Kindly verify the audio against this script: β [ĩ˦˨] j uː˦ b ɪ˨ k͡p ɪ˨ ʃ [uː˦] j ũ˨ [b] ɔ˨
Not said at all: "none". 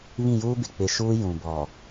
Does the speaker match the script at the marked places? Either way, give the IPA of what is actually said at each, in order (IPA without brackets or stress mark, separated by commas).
ĩ˦˨, uː˦, b